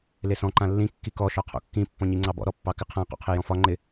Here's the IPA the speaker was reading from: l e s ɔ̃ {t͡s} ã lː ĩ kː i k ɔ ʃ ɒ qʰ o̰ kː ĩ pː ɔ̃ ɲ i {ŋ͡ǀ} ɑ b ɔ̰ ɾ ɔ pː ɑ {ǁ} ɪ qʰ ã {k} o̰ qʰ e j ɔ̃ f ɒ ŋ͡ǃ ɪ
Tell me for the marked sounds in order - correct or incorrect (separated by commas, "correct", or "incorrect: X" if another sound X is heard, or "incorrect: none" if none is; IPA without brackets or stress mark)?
incorrect: ǃ, correct, incorrect: k, incorrect: q